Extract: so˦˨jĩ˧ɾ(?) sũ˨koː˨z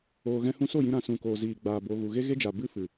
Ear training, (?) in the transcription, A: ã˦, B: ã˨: B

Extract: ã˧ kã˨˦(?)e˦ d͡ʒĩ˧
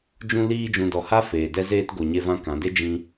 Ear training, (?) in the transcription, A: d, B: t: A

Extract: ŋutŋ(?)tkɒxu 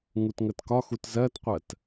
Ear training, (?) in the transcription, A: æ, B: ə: B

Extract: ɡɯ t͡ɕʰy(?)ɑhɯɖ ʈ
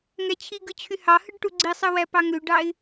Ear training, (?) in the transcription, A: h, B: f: A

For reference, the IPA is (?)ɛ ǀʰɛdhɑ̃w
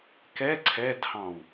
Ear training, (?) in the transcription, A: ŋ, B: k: B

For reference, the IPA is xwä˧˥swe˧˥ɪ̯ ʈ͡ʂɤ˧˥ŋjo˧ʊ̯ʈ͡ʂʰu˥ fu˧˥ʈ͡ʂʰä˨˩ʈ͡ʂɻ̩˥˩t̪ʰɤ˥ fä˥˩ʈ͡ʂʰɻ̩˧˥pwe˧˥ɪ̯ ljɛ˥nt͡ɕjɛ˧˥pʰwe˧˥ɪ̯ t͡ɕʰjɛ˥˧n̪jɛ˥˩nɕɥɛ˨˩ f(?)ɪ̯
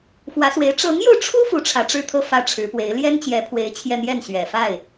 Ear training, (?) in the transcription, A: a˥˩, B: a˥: A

